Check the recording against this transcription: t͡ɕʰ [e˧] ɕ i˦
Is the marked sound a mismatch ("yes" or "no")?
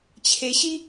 no